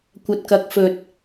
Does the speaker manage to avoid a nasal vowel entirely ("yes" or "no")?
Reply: yes